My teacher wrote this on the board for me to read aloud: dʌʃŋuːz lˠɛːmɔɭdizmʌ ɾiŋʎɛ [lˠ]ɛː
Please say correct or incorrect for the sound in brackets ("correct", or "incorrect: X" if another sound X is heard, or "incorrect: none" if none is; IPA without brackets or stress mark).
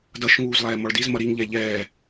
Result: incorrect: ʎ